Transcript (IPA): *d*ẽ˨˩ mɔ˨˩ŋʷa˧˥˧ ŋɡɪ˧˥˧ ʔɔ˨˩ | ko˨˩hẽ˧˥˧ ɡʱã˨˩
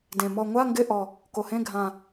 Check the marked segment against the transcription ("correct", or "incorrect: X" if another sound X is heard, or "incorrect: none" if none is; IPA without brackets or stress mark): correct